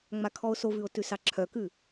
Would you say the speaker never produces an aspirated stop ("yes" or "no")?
no